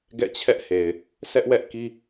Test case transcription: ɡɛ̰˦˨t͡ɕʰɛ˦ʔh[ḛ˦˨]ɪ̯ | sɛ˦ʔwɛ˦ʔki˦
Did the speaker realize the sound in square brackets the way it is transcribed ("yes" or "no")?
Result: no